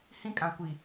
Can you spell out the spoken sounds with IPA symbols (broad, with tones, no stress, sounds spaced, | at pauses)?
h ĩ˦ kʼ ã˨ kʷ i˨